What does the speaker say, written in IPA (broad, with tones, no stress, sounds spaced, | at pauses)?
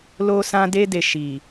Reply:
l o˦ s ã˦ d e˧ d e˨ ʃ i˨